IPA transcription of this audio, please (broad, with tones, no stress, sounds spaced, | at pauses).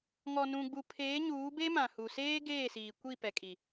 ŋ ɔ˨ n ũ˨ ɡ͡b u˨ pʰ eː˨˦ ɲ uː˨˦ b e˦ m ã˨ h u˨ s eː˦ ɡ eː˦˨ s iː˨ kʷ i˦˨ p ɛ˨ kʼ i˨